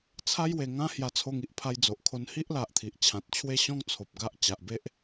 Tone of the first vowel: high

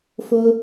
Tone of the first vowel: high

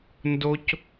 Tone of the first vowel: high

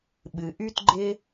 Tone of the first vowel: low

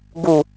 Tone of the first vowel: low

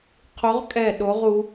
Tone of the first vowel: rising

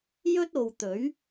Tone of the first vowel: high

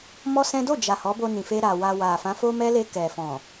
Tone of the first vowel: high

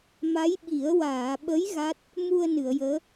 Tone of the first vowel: rising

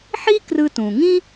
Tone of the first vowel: high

